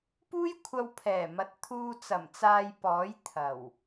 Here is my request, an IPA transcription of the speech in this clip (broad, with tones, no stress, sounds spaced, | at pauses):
p uː˥ j kʷʰ ɐ˧ w pʰ ɛː˨˩ m ɐ˨˥ t̚ t̪ʰ uː˧ t͡s ɐ˨˩ m t͡s aː˧ j p ɔː˨˥ j t̪ʰ ɐ˨˩ w